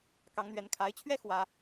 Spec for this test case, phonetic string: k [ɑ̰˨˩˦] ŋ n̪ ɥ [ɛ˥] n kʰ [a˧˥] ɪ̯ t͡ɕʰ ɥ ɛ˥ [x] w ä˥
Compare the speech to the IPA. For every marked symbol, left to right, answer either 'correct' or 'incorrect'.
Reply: incorrect, incorrect, correct, correct

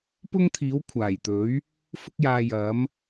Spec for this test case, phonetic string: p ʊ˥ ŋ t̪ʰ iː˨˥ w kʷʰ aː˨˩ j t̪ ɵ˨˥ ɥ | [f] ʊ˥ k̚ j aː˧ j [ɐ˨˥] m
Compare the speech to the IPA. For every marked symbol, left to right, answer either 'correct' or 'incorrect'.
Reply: correct, correct

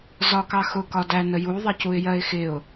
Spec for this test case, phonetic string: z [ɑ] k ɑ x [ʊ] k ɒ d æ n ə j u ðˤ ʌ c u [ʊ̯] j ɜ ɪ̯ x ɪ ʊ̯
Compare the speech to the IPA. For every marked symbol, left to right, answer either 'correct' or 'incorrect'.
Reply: incorrect, correct, incorrect

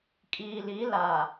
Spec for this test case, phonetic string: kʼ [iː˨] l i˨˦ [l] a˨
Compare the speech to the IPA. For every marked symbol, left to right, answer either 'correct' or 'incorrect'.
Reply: correct, correct

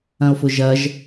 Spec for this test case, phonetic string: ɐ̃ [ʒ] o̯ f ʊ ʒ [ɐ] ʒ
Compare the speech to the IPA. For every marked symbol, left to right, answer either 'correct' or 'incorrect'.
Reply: incorrect, correct

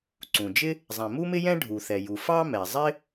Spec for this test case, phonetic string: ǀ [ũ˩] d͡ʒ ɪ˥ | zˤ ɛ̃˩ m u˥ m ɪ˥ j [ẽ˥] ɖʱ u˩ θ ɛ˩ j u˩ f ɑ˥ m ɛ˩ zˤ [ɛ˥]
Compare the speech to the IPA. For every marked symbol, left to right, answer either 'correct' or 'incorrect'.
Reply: correct, incorrect, incorrect

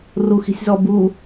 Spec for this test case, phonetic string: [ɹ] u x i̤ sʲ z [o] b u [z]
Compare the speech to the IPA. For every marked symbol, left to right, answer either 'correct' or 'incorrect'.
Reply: incorrect, incorrect, incorrect

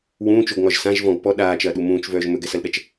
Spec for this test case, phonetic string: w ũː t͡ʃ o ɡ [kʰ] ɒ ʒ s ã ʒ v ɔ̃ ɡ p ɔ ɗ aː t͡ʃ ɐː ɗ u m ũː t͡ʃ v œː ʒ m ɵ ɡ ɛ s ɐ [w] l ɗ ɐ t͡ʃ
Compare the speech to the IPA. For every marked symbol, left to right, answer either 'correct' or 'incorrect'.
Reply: incorrect, incorrect

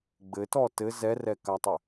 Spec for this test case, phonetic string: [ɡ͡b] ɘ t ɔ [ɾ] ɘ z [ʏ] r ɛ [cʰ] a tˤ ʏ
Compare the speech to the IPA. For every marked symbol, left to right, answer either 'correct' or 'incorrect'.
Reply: correct, incorrect, incorrect, incorrect

